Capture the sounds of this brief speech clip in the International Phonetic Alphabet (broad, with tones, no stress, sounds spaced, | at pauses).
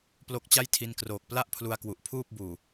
p l o˦˥ k̚ t͡ɕ a˥˩ j tʰ i˧ n k r oː˨˩ k̚ p l a˥˩ ʔ pʰ l u˧ a̯ k w u˨˩ ʔ pʰ uː˥˩ p̚ b uː˨˩